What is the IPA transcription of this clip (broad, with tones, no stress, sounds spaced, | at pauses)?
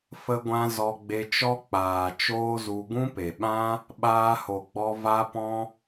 f ə˧ ɡʷ ã˧ z ɔ˧ ɡ͡b e˧ t͡ʃ ɔ˦ k͡p aː˨ t͡ʃ oː˦ z u˧ ɡ ũ˦ p e˨ ɓ ã˦ | ɓ aː˧ h o˨ ɡ͡b ɔ˧ v a˦ p ɔ̃˦